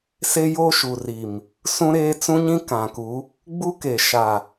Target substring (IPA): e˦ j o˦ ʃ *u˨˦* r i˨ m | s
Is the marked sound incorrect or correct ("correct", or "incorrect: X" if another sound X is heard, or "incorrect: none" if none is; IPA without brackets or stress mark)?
incorrect: u˨